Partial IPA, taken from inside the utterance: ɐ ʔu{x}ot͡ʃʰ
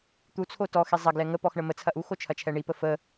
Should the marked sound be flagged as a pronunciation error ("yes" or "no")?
no